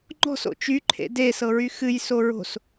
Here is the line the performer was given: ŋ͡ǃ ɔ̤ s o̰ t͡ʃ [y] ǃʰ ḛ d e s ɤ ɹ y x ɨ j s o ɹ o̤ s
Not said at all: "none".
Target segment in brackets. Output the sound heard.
y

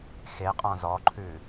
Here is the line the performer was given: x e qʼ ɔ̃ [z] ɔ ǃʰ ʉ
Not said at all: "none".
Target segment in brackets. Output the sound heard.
z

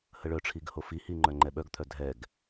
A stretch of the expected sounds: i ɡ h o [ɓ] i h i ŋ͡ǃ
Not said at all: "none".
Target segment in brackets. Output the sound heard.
f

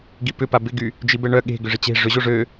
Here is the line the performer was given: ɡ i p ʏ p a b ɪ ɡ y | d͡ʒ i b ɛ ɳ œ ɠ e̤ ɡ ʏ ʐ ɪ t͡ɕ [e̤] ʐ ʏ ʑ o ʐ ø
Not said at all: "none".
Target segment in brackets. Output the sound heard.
e̤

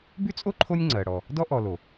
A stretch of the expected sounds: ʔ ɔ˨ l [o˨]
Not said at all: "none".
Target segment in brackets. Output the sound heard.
o˩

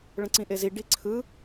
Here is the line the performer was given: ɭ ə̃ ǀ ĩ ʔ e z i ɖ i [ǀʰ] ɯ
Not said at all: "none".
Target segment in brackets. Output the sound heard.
ǀʰ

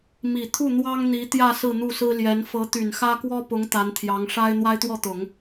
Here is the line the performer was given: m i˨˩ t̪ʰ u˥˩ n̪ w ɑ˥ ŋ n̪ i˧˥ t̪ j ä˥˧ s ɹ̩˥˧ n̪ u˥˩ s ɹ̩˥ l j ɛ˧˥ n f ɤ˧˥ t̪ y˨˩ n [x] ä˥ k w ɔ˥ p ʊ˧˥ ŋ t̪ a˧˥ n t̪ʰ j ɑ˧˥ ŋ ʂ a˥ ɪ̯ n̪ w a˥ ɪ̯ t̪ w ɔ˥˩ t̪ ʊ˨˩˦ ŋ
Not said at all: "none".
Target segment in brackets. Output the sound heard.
x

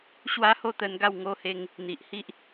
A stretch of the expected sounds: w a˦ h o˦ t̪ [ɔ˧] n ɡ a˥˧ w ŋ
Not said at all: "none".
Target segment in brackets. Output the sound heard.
ə˧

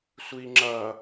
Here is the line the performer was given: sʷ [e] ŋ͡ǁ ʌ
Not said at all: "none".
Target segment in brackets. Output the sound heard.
i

